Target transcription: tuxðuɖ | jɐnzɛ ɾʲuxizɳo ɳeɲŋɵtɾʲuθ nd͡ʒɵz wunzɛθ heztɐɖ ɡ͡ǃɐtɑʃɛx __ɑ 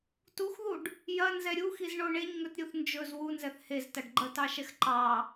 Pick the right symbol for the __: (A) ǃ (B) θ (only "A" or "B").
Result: A